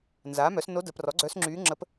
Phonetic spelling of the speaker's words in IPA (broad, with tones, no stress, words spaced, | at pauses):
nzaː˩˥mœ˩˥s no˧˥də˩˥ prɔ˩˥ɡ͡ǀœ˧˥sŋ͡ǁyː˧˥ ŋ͡ǁə˧˥p